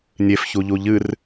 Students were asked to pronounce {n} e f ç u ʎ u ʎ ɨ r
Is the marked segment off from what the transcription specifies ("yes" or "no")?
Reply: yes